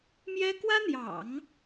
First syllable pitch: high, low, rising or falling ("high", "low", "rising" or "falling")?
high